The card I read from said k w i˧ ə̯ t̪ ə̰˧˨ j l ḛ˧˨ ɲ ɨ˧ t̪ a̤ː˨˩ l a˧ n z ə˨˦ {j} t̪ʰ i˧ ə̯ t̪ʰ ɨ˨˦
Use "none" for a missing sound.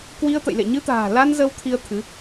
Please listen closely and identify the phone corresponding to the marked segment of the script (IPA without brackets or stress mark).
w